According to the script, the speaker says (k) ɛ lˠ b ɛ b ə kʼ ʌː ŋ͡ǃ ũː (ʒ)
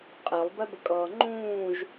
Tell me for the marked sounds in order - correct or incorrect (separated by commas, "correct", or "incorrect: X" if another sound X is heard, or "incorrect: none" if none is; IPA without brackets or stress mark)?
incorrect: qʼ, correct